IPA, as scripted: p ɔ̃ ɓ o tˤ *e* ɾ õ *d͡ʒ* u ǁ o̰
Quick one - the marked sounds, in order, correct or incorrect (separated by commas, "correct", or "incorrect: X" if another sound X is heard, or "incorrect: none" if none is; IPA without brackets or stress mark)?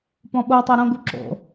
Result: correct, incorrect: ɡ